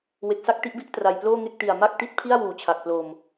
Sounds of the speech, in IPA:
we˨˩k̚sa˥˩k̚ ti˦˥ʔbi˥˩ʔ tra˨˩jploː˥˩ŋe˥˩k̚ ti˨˩a̯ ma˥˩k̚ti˥˩t̚ pʰi˥˩a̯wuː˨˩t͡ɕʰa˨˩k̚ plo˧m

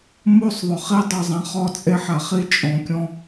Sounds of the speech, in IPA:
mo˦˨sˤðˤʊ˨χi˦ dˤɛ˨zˤã˨ χɔ˦t͡sʼe˦ħa˨ χi˦ t͡ʃʼɔ̃˨kʲɔ̃˦

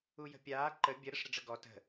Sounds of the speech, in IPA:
ujə̤pʲaː ǃə bʲə ɾəʂɾəɖ͡ʐəɡɔ tə̤

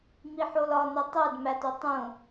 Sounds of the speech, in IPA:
miħolɒno tˤæd mæto tˤũ

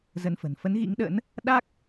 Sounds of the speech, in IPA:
zə˧nfə̤˨˩n fə˨˦nɣḭ˧˥ŋɗə̰˧˥n | ɗa˦˥k̚

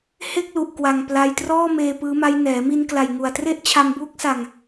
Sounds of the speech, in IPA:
he˥˩k̚lu˨˩ʔ kwa˨˩ŋ pla˧jtrɔː˥˩meː˧ pɯː˦˥ma˦˥j nɛː˩˦mi˧nkla˨˩j ŋu˨˩a̯tre˥˩ʔt͡ɕʰa˧m buː˦˥k̚sa˧ŋ

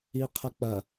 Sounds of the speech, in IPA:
iqʰɐk͡pɐ

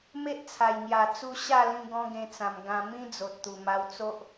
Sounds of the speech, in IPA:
me˦ʔt͡sʰa˨˩j ŋja˨˩t͡su˧ ɕa˥˧lĩ˧ ɡɔ̃˦ɡẽ˧t͡sã˨˩m ɡã˧ mĩ˦d͡zo˨t̚t̪u˨˩ ma˧wt͡so˦ʔ

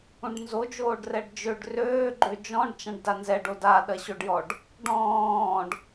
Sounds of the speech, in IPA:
ũɖnzod͡ʒoːɖ rɛɖd͡ʒøɖ røː ɡ͡ǃød͡ʒɔ̃ɖ t͡ʃãɖdanzɛɖo daɗɐɕoɖjɔɖ | ɖɔ̃ːɖ

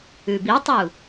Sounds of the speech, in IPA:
ʉbitˤu

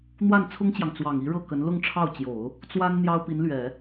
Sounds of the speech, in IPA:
n̪wa˥˩nt͡sʰʊ˥ŋt͡ɕjɑ˨ŋ t͡swɑ˨˩ŋi˧˥ ɻɤ˥˩kə˧˥n lʊ˥˧ŋʈ͡ʂʰɑ˥˩ʊ̯t͡ɕjo˨˩˦ʊ̯ | t͡swa˥n n̪jɑ˥ʊ̯pi˧˥nlɥɛ˨˩˦

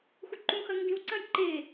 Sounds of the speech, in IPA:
xuǃũxɐ ŋɡĩw ǀɐ̃jǃe

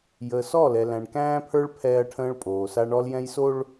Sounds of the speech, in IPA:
jəː˨sɔ˦˨lɛ˨ læ̃˨ɳkæ̃ː˦pʰə˞˦ɭ pʰɛː˦ɐ̯ʈʰə̃ː˦ɭpʼoː˨ sa˦ɳɔ˦ljɛ̃˦jso˦ɭ

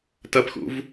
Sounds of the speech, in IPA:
tɐpxṵv

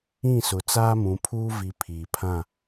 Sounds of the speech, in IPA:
ĩ˦˨sʊ˨ t͡saː˦mũ˨pʰuː˦ vi˨ pʰiː˨pʰã˦˨

